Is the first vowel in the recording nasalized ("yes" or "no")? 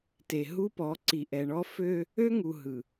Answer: no